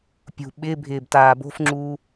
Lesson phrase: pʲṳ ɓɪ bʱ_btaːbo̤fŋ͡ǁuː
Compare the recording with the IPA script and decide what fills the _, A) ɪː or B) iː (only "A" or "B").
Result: A